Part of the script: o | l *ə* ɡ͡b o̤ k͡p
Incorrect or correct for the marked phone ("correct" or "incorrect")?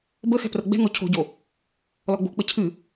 incorrect